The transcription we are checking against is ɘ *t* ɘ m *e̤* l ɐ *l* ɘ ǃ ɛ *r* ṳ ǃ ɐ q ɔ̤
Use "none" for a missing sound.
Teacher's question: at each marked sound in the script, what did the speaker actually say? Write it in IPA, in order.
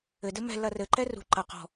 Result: d, ɛ̤, r, r

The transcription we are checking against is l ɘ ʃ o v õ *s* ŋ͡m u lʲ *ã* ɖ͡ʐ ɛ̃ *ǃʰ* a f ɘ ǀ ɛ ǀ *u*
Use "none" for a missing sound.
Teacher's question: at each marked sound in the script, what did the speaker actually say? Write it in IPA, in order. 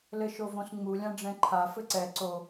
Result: s, ã, ǃʰ, o

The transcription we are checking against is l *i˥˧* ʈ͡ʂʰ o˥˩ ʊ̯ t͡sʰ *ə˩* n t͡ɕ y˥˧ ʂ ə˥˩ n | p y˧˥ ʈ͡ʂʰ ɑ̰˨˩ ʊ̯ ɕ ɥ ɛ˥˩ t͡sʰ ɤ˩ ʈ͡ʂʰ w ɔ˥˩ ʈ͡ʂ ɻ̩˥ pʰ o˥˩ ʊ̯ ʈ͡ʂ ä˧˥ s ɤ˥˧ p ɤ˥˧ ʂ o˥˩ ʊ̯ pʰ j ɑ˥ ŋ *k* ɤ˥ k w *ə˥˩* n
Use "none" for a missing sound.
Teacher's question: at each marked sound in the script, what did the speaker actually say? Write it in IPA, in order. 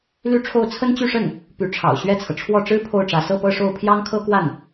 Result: y˥˧, ə˥, kʰ, a˥˩

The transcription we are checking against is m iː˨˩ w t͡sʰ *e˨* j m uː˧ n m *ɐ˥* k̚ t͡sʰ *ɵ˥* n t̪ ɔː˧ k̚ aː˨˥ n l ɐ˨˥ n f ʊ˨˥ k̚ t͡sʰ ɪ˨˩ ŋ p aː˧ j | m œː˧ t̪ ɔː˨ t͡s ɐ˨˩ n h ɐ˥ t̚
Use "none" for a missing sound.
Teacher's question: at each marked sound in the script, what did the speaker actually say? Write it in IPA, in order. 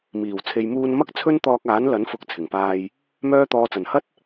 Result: e˨, ɐ˥, ɵ˥

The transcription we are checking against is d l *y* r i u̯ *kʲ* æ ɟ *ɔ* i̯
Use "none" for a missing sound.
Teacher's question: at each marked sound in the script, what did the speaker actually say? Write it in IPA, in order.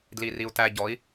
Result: i, t, ɔ

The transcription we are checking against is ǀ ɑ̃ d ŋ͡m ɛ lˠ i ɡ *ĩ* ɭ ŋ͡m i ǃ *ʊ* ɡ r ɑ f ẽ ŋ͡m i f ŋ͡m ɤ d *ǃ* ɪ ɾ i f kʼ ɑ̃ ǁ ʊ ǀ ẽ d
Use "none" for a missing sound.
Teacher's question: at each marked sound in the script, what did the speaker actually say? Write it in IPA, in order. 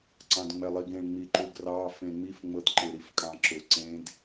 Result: ẽ, u, ǃ

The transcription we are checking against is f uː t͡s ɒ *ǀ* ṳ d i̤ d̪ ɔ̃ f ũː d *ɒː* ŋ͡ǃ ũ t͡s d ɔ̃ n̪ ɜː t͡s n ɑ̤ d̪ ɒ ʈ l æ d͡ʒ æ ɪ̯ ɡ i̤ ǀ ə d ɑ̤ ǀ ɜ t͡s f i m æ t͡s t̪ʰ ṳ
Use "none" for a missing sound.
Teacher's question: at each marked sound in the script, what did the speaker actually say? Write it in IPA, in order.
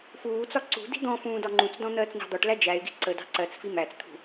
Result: ǀ, ɒ

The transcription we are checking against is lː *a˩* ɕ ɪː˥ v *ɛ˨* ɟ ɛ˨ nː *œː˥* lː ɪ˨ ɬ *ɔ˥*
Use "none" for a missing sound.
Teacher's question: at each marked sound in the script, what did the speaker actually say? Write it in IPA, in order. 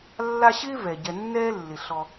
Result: a˦, ɛ˩, ɛː˥, ɔ˨

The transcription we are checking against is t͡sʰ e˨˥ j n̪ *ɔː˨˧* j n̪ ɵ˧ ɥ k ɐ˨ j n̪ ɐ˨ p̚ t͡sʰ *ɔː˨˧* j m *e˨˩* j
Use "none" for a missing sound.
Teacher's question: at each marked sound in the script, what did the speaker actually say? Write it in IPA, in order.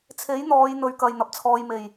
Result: ɔː˨˧, ɔː˨˧, e˨˩

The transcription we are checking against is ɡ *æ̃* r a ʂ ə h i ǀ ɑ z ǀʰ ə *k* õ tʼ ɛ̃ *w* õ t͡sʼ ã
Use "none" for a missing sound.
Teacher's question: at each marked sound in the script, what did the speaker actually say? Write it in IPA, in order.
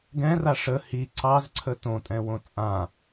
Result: ɛ̃, t, w

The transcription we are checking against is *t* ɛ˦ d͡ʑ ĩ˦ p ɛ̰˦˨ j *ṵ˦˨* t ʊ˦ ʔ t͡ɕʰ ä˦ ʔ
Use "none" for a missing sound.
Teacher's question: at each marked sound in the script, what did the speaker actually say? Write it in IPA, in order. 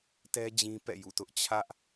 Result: t, ṵ˦˨

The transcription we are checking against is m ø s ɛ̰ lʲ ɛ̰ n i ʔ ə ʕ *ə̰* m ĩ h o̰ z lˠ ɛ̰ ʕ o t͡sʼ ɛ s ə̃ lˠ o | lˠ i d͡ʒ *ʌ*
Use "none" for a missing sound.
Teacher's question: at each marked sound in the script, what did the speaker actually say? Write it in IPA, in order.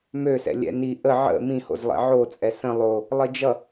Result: ə̰, ʌ

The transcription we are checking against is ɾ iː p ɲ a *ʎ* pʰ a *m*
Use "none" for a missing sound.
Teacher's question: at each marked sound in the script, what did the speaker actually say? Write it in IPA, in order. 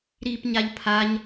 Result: ʎ, ɲ

